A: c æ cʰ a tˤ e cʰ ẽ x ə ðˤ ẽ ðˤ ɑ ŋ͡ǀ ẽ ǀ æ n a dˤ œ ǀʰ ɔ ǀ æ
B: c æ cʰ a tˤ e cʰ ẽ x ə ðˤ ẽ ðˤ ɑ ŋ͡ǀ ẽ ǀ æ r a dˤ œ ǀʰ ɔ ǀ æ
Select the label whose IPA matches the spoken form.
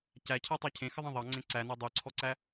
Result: A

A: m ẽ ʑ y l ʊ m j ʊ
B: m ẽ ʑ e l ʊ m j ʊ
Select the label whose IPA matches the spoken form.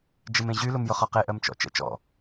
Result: A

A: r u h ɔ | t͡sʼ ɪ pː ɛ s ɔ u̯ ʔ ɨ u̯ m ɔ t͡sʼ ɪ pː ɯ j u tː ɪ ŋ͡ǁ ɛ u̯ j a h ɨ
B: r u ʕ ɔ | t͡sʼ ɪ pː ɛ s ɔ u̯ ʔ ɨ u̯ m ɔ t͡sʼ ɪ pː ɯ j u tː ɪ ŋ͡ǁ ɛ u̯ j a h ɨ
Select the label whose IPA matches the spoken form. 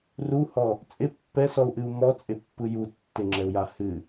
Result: A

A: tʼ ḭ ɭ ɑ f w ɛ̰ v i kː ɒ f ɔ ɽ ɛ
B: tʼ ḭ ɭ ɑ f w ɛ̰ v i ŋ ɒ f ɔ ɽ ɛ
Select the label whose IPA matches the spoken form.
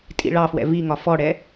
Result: B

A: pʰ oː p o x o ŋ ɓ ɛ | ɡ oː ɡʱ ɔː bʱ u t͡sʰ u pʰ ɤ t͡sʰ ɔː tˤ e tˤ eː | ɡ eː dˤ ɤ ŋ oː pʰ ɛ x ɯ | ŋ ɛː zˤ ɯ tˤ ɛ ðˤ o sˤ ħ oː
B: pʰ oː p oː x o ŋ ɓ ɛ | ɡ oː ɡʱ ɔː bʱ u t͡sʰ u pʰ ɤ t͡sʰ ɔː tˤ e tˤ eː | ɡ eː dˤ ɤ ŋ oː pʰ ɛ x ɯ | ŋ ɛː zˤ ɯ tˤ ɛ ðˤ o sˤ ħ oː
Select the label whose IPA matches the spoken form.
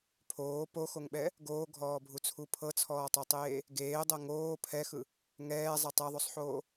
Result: A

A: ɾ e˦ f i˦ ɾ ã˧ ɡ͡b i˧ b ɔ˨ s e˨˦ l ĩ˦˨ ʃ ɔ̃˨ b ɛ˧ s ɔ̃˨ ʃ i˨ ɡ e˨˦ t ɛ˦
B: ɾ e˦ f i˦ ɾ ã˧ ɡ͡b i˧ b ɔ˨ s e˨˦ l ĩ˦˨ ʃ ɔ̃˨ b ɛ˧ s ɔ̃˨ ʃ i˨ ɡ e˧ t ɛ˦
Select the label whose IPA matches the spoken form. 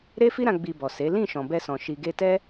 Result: B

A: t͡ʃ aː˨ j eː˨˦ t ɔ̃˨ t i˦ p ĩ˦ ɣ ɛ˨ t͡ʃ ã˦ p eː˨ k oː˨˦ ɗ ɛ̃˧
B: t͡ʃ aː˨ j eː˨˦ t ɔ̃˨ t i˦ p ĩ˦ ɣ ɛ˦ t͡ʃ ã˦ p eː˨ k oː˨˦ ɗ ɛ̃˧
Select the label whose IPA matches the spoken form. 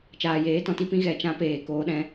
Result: A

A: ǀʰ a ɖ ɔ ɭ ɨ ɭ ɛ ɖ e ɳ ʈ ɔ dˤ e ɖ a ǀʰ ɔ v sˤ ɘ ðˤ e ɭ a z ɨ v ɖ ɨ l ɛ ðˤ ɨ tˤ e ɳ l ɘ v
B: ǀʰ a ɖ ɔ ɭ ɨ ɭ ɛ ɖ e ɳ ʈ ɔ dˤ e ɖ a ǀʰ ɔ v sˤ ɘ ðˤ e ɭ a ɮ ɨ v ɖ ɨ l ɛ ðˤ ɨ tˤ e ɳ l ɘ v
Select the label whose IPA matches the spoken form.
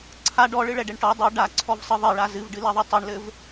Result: A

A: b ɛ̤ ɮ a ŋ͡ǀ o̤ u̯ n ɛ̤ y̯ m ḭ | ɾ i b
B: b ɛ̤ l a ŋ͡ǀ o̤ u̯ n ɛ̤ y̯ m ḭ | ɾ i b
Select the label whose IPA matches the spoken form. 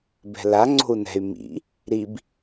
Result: B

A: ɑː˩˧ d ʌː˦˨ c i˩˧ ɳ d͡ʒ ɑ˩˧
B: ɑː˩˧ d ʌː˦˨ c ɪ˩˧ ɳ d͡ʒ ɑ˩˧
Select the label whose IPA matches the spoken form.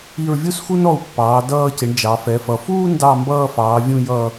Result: B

